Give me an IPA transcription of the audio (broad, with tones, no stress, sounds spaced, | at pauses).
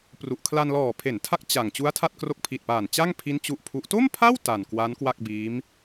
p r u˨˩ ʔ kʰ l a˧ n l ɔː˨˩ pʰ e˩˦ n tʰ a˦˥ k̚ t͡ɕ a˨˩ ŋ t͡ɕ u˦˥ a̯ tʰ a˥˩ t̚ k r o˦˥ k̚ pʰ i˨˩ t̚ p aː˨˩ n t͡ɕ a˥˩ ŋ pʰ i˦˥ n t͡ɕ u˦˥ ʔ pʰ u˦˥ ʔ t o˥˩ m pʰ a˥˩ w t a˨˩ n k w a˦˥ n k w a˥˩ k̚ b iː˦˥ m